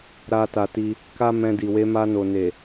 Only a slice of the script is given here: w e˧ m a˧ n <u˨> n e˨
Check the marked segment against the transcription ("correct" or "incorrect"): incorrect